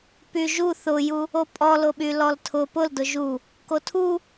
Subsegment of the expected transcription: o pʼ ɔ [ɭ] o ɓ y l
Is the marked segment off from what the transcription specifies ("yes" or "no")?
yes